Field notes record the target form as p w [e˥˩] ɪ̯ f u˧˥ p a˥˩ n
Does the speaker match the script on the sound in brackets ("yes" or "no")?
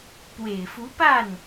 no